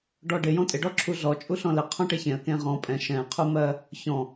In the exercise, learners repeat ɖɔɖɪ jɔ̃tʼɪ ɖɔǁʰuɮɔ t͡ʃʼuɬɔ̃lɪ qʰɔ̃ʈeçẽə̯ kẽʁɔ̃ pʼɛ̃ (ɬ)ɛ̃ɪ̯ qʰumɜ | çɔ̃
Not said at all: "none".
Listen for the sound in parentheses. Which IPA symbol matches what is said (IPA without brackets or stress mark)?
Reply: ʃ